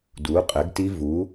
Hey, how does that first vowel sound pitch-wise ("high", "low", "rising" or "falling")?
rising